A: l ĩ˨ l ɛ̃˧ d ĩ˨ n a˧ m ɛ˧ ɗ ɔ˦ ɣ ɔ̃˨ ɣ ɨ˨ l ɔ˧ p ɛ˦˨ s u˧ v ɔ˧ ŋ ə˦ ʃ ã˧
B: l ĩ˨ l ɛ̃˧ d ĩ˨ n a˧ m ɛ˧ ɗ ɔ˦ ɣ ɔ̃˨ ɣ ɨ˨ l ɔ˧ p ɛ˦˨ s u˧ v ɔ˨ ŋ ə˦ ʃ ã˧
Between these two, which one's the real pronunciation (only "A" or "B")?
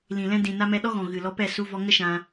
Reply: A